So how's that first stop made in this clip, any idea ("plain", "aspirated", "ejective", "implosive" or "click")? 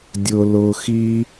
plain